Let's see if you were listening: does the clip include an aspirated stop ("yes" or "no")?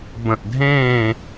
no